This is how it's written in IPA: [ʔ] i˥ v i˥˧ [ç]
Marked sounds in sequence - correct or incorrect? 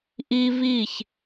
correct, correct

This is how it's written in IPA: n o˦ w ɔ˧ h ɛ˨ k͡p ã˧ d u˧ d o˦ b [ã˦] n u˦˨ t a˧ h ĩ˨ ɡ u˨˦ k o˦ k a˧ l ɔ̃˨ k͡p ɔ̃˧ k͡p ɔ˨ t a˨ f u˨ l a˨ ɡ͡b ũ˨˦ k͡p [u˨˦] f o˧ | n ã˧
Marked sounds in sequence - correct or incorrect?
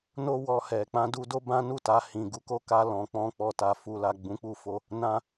correct, incorrect

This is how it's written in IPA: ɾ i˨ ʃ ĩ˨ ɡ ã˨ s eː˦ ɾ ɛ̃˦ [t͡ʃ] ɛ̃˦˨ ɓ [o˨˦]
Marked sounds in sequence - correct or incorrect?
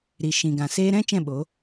correct, correct

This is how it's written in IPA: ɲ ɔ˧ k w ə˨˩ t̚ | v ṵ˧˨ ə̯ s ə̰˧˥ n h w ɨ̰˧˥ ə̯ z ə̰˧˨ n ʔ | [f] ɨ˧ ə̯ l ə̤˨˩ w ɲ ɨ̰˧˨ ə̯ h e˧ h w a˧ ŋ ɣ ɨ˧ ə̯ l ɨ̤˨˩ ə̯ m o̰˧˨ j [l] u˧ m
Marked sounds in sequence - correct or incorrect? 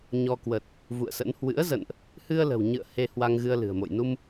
incorrect, incorrect

